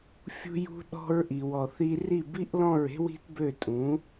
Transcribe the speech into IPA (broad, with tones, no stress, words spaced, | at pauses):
fʲṳ˧jṳ˧ ɗɔ̤˧ɹʔi˩wɔ˩θi˧ ri˥˩bi˥ʔlɔ̃˥˩ɹe̤˥w i̤˥tbø˥˩tʼũ˩˥